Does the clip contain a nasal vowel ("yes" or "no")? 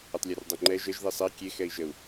no